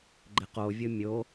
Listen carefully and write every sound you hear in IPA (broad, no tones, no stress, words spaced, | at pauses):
ɡ͡ǃɪqovʲʊ mʲo